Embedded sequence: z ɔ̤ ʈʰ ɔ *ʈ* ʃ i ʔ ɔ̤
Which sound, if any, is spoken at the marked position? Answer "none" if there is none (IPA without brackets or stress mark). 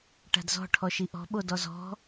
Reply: none